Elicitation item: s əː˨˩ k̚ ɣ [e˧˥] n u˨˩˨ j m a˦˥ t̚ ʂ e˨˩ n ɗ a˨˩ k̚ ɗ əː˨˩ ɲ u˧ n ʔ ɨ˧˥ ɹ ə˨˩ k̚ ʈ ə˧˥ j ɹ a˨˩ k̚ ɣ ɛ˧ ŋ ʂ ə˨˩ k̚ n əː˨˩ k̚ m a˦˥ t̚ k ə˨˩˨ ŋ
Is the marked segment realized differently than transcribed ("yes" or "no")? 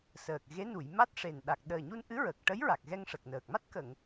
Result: no